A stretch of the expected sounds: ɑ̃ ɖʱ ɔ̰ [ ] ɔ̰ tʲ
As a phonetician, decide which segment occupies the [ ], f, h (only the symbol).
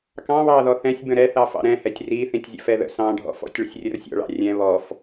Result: f